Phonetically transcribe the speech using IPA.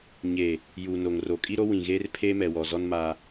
ɲeː˨ | juː˨no˨ŋro˨ kʼi˦ɾo˦ wĩ˨ɣeː˦r pʰeː˦mɛ˨wɔ˨zɔ˦n maː˦

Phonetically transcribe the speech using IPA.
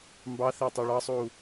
mbɑθɪː tˤɜɭɑsˤuː

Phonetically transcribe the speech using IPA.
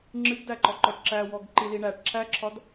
ŋ͡ǁɨɡdæǃɔ ǃɔʈǁæwɔɡ ǃiliɳæʈ ǁʰæǁʰɒd

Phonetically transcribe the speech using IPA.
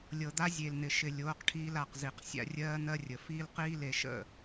lʲɤ˨d̪a˦ zʲe˨ln̪ɪ˨ʃɪ˨ lʲoː˨˦qʈʰiː˧l a˨qzi˨q sʲa̰˧rʲɜː˦n̪ɜ˦rʲə˨ fiː˦lqiː˦le˧ʃə̰˦˨

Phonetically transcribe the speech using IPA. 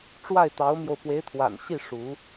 ʈ͡ʂwa˥˩ɪ̯t̪ɑ˧˥ʊ̯mjo˧ʊ̯ pwe˧˥ɪ̯t̪ʰwa̰˨˩nɕi˥˩ ʂu˧˥

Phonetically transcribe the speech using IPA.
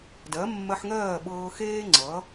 dɜ˩˥ mːɜ˧ħŋɜː˥˩ ɓɤː˧ xeː˥ ŋ͡ǀʌː˩˥

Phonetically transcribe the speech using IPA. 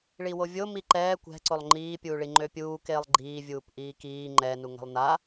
ɭiwovʲo miǃɛː kʷɛ̤ǀolˠ ŋ͡ǃiːpʲuːɭi ŋ͡ǃøpʲuː keːlˠɡ͡ǃiːvʲuːp ʔiːkiː ŋ͡ǃɛnu ŋɛ̤lˠna

